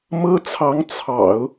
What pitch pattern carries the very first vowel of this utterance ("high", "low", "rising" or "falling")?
high